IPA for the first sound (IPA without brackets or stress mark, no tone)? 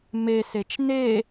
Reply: m